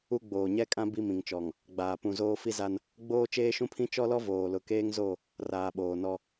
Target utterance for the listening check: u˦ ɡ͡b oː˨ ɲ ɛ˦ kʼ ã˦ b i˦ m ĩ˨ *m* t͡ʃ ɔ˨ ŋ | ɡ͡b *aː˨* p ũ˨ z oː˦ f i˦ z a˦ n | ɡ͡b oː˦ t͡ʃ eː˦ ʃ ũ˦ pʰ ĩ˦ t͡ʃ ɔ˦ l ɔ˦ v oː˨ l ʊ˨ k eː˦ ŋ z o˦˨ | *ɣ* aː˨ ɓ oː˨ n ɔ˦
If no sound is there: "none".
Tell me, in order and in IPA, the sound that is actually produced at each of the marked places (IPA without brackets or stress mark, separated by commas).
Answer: ŋ, aː˨, r